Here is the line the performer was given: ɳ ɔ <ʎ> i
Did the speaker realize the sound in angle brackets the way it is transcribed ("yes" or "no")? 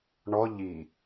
yes